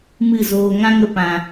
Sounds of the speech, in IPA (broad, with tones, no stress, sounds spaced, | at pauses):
m ɨ˦˨ z oː˧ ŋ ã˦ ŋ ə˧ p ã˨